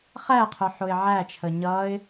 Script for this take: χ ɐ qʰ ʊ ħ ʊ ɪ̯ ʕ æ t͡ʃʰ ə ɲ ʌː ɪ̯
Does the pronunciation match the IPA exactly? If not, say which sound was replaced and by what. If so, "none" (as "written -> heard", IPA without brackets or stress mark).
ɐ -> æ